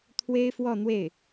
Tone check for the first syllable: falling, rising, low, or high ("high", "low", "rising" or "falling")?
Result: high